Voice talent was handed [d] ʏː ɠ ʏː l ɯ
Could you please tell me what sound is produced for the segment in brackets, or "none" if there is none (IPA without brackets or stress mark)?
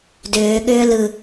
d